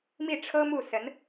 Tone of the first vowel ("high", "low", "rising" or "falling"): falling